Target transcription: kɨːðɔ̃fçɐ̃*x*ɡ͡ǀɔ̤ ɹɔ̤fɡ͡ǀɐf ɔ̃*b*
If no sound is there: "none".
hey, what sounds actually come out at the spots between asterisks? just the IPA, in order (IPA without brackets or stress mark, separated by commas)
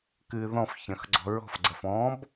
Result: x, b